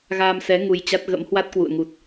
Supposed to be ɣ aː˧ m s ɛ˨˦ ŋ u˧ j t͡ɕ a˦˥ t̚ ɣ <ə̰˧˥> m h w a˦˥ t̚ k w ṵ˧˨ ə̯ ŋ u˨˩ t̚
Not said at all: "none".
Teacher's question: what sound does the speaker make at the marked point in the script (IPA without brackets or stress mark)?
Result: ə̰˧˥